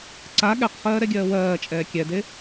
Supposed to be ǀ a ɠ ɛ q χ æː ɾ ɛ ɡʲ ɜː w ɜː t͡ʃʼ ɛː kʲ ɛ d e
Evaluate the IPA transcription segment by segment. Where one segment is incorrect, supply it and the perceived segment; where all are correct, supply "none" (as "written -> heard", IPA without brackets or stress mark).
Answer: æː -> ɜː